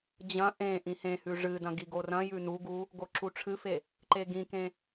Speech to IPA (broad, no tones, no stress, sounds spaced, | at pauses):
d͡ʑ ɐ̃ ʔ ẽ ʔ ĩ h ẽ h ʉ ʐ ɨ d ɐ̃ ɡ i ɡ o r ɐ̃ j ʉ n u ɡ u | ɡ o ǁ u ʈ͡ʂʰ ɨ f e | ǃ e ɡ ĩ k ẽ